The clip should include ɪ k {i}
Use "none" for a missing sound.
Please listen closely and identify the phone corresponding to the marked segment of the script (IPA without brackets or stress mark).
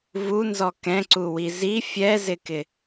ɪ